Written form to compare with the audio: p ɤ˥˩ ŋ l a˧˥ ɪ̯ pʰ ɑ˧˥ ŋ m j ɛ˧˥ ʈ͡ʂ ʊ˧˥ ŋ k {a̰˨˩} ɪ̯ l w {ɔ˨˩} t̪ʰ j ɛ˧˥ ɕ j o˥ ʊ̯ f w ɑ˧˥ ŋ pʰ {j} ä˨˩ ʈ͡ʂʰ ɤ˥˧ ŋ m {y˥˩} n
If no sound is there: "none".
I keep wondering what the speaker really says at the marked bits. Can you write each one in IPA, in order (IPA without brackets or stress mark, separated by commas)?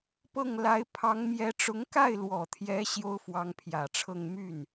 a˥˩, ɔ˨˩, j, y˥˩